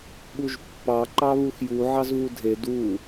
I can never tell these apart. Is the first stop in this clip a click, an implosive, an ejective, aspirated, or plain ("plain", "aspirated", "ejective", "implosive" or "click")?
implosive